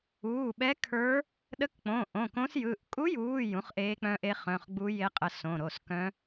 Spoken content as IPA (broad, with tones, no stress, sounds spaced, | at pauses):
uː˩˧˩ ɓ ɛ˧˥ kʰ ə˞˧˥ | ɗ ə˧˥ k k͡p õ˩˧˩ ʔ õ˩˧˩ k õ˧˥ s j ɯ˩˧˩ ʔ kʼ u˧˥ j uː˩˧˩ j ũ˧˥ χ ʔ eː˧˥ k͡p œ̃˧˥ ʔ e˧˥ χ œ̃˩˧˩ χ ɡ͡b u˧˥ j e˧˥ qʼ ə˩˧˩ s õ˩˧˩ ɾ o˩˧˩ s k œ̃˧˥